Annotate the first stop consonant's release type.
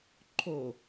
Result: click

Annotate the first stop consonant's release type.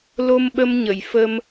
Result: implosive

